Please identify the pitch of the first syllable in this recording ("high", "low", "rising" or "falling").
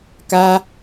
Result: high